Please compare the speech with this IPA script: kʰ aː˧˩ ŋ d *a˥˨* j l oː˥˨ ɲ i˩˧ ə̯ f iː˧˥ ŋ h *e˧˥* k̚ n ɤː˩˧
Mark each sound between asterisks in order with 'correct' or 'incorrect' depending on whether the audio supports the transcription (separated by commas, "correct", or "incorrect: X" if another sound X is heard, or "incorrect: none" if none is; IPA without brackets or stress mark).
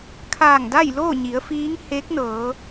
correct, correct